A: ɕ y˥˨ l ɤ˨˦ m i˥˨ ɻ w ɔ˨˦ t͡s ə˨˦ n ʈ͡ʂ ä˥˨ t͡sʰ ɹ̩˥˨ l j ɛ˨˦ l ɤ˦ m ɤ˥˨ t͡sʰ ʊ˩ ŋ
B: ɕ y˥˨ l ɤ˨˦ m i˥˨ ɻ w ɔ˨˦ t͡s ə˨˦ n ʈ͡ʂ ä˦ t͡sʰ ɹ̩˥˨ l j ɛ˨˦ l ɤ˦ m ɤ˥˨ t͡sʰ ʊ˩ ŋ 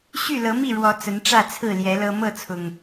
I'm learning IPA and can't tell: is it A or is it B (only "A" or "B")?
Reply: A